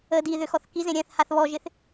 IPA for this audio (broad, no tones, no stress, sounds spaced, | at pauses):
ə d i ð ʏ x ɔ θ k i z ẽ ɾʲ ɛ̃ θ h a θ β ɔ ʒ ɪ θ